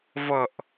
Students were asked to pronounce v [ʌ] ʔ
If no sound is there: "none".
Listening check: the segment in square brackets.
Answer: ʌ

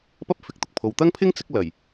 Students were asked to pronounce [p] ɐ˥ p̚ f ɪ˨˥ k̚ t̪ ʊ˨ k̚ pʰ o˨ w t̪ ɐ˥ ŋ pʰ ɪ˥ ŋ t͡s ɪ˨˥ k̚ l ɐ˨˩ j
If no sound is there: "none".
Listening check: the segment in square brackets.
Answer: p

